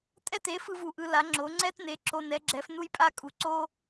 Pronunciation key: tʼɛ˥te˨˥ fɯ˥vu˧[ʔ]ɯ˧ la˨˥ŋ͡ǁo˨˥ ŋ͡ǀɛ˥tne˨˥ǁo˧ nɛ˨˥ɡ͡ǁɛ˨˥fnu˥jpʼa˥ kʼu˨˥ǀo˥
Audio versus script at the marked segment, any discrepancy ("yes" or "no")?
no